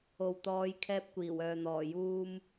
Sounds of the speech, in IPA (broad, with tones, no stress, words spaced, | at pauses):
o˨wt̪ɔː˨˧j kʰɛː˧p̚kʷiː˨˩wœː˨ n̪ɔː˨˩juː˧m